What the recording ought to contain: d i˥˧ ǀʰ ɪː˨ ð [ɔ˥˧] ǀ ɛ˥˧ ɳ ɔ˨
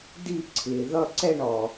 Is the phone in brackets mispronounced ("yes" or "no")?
yes